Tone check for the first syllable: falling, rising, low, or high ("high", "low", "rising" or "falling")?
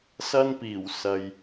high